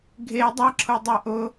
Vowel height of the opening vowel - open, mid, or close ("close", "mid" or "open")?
mid